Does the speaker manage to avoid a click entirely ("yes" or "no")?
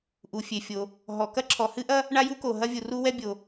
no